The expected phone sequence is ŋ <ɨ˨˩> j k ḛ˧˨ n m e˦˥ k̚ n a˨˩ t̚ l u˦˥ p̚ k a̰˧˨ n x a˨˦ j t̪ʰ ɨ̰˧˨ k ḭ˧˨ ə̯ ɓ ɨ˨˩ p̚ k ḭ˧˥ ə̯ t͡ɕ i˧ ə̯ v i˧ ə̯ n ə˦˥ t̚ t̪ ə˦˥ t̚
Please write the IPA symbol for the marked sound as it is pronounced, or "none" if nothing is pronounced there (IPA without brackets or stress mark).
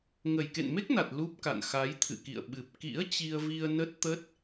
ə˨˩